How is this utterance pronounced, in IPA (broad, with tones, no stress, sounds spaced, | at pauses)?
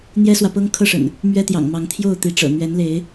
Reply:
n̪ j ɛ˦ s w ä˨ p ɤ˦ ŋ kʰ ɤ˥˨ ʂ ə̰˨˩ n | m ɥ ɛ˦ t̪ j ɑ̰˨˩ ŋ m ɑ˨˦ ŋ t̪ʰ j o˥˨ ʊ̯ t̪ i˨˦ ʈ͡ʂ ɤ̰˨˩ n̪ ɥ ɛ˨˦ n l e˨˦ ɪ̯